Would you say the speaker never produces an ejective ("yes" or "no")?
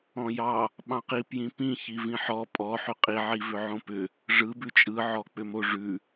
no